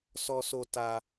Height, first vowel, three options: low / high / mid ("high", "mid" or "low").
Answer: mid